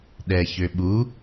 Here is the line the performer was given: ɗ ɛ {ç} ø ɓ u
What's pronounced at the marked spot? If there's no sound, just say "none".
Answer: ç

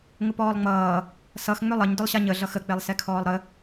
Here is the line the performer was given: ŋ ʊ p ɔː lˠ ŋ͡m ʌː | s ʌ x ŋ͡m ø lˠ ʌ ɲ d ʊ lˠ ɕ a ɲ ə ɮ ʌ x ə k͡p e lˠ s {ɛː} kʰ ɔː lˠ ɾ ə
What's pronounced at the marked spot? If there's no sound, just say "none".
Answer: ɛ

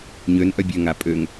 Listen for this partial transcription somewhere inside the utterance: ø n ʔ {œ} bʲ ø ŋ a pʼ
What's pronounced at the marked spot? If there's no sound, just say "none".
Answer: œ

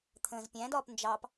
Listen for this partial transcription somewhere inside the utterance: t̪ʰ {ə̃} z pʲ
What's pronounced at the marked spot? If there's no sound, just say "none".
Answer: ə̃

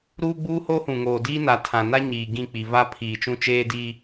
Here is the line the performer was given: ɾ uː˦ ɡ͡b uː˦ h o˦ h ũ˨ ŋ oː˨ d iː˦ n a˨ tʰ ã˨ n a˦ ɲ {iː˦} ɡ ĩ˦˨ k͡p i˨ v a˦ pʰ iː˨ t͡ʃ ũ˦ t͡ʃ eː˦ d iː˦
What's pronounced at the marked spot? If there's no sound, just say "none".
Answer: iː˨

